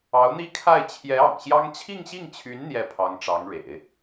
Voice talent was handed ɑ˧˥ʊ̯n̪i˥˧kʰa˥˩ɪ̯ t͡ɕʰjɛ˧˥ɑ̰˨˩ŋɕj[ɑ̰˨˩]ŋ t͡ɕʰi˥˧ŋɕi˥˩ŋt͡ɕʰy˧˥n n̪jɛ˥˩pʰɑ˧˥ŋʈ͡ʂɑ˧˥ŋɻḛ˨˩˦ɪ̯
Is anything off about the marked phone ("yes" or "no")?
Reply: yes